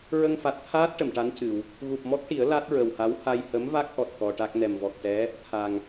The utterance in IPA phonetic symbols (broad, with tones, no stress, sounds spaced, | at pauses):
ɹ ə˧ ŋ f a˨˩ t̚ t̪ʰ aː˦˥ t̚ ʈ ə˨˩˨ m ʈ a˧˥ n c ɨ˨˩˨ w | ɣ u˨˩ p̚ m ɔ˦˥ k̚ ʈ i˨˩˦ ə̯ l a˦˥ t̚ ɹ ə˨˩ w h a˧˥ w h a˧ j h ə˧˥ m v a˦˥ k̚ ʔ ɔ˨˩ t̚ t̪ ɔ˧ ʈ a˦˥ k̚ n ɛ˨˩ m v ɔ˨˩ k̚ ʈ ɛ˧˥ | t̪ʰ a˨˩ ŋ